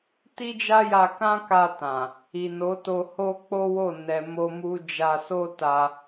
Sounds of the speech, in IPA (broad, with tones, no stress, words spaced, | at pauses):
ti˦d͡ʒa˦ja˧ kã˦ka˧ tã˨ | i˨ no˨˦to˧ ho˦k͡po˦wo˦˨ nɛ˧mo˦ mu˦ d͡ʒa˧so˦ ta˧